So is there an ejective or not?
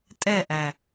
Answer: yes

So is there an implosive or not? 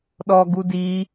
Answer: yes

